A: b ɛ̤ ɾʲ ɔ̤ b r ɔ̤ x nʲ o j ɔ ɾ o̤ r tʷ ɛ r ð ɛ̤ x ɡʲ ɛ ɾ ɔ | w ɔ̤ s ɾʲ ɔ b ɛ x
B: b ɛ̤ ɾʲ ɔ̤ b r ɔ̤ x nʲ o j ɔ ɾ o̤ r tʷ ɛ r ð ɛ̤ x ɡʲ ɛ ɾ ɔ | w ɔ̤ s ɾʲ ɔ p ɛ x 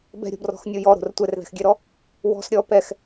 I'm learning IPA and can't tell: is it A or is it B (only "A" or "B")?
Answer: B